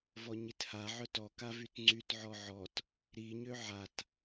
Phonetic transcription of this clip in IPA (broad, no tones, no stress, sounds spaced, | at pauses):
v ɔ ɲ i t h a ʕ œ t ɔ k a v y t ŋ͡ǀ y t ʕ ɔ ʕ ɔ t | ɾ i ɲ ø ʕ a t